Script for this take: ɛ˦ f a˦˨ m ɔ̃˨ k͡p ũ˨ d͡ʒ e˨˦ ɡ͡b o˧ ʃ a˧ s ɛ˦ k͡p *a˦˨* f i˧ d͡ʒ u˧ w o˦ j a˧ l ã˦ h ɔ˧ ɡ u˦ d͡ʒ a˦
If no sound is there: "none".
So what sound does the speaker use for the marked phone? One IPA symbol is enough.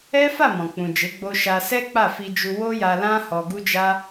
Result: a˦˨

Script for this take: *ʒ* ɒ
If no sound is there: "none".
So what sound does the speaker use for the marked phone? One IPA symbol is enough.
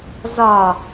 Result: z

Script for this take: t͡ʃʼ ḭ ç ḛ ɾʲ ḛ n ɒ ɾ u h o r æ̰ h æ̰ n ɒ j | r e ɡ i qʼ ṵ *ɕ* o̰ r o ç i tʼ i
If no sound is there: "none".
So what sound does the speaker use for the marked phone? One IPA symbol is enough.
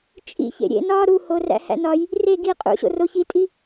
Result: ɕ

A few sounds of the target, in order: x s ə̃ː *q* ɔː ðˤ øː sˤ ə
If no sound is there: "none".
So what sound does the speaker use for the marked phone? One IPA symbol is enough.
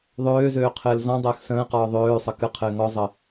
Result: q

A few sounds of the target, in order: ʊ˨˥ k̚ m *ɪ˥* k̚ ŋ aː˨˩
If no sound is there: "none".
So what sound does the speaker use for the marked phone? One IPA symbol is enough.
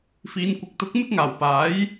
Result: ɪ˥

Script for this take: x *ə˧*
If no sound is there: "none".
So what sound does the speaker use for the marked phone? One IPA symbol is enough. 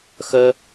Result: œ˧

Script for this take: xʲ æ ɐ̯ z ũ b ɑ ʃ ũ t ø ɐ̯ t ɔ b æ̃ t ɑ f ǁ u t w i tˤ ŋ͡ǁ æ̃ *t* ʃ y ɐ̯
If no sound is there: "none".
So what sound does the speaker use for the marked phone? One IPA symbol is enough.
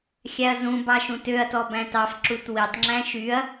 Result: none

